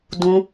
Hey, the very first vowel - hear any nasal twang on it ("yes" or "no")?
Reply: yes